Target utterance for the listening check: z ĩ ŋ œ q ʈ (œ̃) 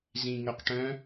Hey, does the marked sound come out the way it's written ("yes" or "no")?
yes